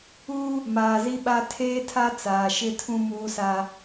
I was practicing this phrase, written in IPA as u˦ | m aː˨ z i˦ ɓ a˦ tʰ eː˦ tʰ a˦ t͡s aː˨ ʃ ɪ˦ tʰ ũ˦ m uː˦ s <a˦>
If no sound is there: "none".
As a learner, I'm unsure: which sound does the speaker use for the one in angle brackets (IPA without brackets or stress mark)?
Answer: a˦